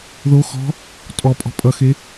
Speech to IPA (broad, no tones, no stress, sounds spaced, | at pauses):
ð o x ɔ̤ | tʼ ɔ pʼ ɔ̤ pʼ ʌ x e